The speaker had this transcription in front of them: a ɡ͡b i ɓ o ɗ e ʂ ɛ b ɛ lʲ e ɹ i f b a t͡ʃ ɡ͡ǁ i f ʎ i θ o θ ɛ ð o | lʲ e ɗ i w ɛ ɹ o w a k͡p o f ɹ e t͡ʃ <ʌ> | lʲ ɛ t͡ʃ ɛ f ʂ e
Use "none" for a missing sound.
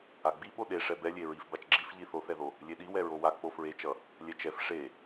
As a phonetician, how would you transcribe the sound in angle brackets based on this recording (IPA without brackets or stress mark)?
ʌ